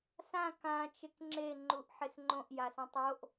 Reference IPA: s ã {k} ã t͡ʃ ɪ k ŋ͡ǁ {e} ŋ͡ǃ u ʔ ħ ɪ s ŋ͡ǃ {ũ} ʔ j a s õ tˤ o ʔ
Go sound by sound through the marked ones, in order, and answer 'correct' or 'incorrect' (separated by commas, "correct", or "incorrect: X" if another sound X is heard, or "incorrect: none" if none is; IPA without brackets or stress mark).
correct, correct, incorrect: õ